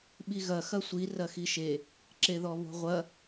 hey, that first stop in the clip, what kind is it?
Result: implosive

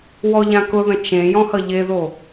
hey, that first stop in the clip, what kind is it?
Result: plain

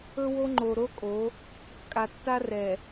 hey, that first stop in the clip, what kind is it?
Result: click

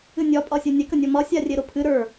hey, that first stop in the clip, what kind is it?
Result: ejective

